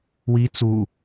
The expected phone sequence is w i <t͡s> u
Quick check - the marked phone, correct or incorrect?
correct